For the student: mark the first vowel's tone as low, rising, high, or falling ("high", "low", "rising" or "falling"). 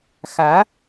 rising